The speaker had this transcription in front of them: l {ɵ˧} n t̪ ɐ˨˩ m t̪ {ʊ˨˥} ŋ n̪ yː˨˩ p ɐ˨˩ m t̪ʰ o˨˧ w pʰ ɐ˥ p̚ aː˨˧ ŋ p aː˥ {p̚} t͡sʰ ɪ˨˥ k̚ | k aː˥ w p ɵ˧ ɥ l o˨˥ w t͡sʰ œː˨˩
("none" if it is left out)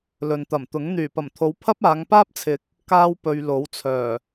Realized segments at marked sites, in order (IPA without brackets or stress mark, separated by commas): ɵ˨, ʊ˨˥, p̚